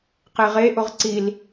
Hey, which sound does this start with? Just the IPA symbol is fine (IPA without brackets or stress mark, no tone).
q